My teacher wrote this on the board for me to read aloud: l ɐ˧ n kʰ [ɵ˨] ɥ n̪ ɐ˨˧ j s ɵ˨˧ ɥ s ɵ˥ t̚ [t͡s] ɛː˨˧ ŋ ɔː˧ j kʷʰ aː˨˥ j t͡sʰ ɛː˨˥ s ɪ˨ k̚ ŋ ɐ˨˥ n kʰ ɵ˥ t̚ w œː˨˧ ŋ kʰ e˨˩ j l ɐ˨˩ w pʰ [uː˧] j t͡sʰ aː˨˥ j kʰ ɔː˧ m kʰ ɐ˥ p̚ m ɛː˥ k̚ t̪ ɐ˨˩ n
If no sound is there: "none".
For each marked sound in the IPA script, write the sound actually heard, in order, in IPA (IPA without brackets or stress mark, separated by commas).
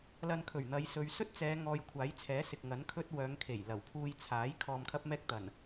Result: ɵ˨˩, t͡s, uː˧